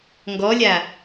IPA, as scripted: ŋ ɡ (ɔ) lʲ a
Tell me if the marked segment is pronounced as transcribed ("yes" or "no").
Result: yes